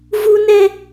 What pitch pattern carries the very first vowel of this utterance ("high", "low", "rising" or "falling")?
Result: high